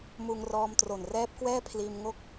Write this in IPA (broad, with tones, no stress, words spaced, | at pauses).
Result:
muː˧ŋrɔː˧mtro˨˩n rɛː˦˥p̚kwɛː˥˩pʰliː˧m ŋo˥˩k̚